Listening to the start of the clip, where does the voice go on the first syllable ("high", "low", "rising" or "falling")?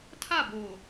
falling